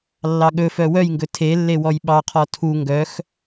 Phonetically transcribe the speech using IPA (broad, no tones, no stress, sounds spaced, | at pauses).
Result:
lː ɑ ɠ ɵ f œ w œ j ŋ ɡ ɵ tʰ e lː e w ɔ j ɓ ɑ qʰ ɔ tʰ u ŋ ɡ œ x